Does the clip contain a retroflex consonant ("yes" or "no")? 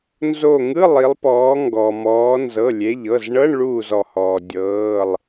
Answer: yes